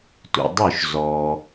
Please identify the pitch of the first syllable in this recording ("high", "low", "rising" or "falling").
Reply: low